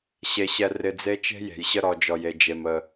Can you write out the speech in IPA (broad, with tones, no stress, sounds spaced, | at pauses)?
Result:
ɕ e˧ ɕ ɛ˧ r ɪ˧ d͡z e˦ t͡ʃ e̤˦ j e̤˨ j ɕ ə˧ ɾ ɔ˨ d͡ʒ ɔ˨ j e˨ d͡ʒ e˨ m ə˨